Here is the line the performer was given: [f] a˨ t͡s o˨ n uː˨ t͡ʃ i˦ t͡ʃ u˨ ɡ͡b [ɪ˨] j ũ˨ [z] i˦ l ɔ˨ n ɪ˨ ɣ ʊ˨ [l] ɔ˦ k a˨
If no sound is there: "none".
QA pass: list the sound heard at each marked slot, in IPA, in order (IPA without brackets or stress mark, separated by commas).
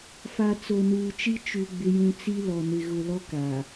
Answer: f, ɪ˨, t͡s, l